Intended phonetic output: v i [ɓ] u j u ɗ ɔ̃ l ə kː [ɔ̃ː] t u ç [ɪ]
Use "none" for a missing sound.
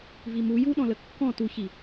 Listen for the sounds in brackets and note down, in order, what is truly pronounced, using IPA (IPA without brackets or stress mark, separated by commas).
m, ɔ̃, i